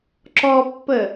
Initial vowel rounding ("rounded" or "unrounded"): rounded